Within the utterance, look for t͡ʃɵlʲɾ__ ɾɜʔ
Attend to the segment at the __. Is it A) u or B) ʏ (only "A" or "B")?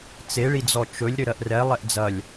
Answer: B